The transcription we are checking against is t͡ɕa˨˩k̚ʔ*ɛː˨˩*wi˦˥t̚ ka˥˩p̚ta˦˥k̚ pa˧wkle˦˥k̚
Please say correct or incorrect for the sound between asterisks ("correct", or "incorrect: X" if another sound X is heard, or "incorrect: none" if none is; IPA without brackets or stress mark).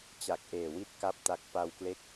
incorrect: eː˨˩